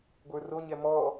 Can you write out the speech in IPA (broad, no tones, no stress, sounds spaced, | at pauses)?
ɡʷ ə˞ r o ɲ ɛ m ɔ